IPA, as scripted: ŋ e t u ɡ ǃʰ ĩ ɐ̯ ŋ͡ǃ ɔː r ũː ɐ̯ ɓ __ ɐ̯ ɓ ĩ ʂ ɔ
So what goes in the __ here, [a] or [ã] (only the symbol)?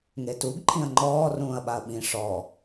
a